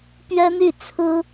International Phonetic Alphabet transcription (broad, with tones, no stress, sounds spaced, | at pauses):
p ɥ ɛ˥ n̪ y˥˩ t͡sʰ ɹ̩˥